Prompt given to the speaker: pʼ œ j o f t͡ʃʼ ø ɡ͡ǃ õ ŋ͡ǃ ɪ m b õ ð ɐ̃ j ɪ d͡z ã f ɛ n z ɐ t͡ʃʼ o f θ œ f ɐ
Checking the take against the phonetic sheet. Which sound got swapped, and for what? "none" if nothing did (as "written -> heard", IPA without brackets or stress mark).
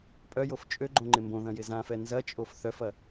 d͡z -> z